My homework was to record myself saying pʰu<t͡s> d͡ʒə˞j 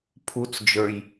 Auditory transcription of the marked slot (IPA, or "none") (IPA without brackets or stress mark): t͡s